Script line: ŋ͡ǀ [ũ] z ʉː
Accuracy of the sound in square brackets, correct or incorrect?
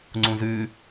correct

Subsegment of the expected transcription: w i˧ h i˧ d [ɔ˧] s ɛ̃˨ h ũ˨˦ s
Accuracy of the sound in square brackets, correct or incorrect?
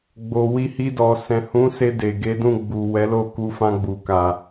incorrect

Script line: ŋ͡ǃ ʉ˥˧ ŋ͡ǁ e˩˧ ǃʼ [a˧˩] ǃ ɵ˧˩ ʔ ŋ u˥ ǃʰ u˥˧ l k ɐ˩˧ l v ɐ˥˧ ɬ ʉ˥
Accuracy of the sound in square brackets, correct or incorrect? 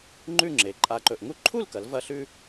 correct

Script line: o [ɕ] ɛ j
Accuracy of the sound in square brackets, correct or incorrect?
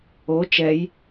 incorrect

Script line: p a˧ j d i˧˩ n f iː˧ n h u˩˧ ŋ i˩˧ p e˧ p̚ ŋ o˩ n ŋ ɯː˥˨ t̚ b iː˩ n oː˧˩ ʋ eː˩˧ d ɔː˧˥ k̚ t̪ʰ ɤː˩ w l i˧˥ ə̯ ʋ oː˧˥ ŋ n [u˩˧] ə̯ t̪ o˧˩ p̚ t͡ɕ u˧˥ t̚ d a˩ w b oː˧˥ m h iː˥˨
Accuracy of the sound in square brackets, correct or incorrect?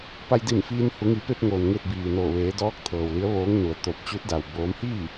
correct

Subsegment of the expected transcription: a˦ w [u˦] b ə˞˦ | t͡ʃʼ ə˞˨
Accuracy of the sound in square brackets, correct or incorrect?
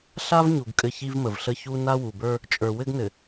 incorrect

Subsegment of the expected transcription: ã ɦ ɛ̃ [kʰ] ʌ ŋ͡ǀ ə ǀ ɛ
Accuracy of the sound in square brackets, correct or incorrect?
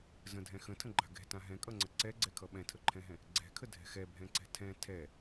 incorrect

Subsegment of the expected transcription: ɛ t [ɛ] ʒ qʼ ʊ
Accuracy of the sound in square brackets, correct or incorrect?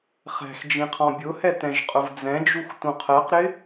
incorrect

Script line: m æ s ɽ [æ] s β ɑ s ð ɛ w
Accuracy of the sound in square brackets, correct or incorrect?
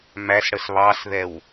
incorrect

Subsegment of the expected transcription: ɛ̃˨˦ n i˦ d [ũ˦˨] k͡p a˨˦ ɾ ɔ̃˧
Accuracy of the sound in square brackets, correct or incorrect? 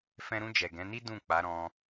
correct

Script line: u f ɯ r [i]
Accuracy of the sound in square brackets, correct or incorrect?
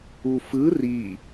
correct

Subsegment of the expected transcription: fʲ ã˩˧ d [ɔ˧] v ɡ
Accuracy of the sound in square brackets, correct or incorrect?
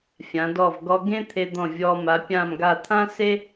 incorrect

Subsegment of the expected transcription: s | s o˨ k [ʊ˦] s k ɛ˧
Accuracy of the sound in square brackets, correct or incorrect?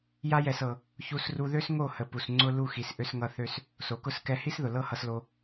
correct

